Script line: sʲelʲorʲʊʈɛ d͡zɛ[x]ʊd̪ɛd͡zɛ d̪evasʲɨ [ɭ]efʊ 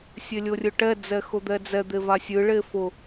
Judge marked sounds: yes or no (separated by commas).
yes, yes